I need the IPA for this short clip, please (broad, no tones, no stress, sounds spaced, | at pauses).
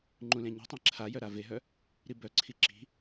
ŋ͡ǃ ũ l ẽ ɲ e̤ tˤ ẽ ǁʰ a j œ ɾ a v e ɦ œ | ɾ i b œ ǀʰ i ǁ i̤